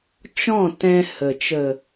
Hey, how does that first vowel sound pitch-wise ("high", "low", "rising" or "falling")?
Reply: falling